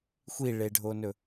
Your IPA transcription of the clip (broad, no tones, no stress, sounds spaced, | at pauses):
xʷ i ɭ e ɖʱ o n ɵ